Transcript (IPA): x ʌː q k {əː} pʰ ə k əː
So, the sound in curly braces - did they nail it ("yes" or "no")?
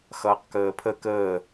yes